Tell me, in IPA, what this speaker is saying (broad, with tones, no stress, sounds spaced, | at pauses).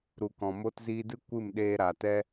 ɾ u˨ k ɔ̃˨ m o˧ t z iː˧ d ɨ˦ kʷ ɨ˦˨ m ɗ eː˧ ɾ a˨ t ɛ˦